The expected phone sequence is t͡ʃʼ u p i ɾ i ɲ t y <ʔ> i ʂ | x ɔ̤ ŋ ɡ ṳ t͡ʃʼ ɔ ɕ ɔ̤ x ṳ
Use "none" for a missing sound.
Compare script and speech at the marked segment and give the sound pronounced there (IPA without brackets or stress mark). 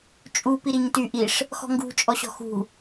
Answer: ʔ